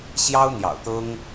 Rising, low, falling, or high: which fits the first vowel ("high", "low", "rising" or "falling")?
high